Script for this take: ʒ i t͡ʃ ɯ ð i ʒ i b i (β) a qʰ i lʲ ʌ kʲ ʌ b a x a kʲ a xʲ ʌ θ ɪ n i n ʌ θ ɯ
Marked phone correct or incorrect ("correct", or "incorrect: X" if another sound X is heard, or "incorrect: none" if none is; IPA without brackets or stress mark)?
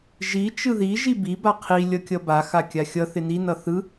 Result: incorrect: b